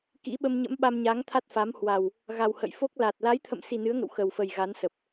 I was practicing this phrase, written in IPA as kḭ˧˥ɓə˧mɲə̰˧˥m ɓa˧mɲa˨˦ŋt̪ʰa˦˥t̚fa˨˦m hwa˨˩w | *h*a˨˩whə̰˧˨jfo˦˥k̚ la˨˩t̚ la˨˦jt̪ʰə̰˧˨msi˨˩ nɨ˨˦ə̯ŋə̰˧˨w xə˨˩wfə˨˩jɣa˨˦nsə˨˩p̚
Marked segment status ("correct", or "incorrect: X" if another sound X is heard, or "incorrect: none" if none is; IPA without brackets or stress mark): incorrect: ɣ